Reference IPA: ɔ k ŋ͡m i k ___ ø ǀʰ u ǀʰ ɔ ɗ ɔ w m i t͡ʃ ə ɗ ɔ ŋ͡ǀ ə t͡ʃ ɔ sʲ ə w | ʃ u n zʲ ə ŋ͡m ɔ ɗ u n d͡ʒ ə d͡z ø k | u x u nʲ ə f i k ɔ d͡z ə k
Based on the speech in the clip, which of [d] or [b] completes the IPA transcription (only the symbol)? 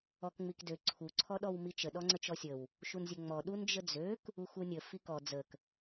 d